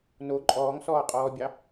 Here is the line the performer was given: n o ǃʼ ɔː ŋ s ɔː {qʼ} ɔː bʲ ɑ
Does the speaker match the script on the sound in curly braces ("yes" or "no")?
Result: yes